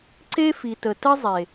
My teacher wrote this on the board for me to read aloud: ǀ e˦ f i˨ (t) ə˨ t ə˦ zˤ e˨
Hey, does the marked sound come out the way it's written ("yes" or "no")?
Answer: yes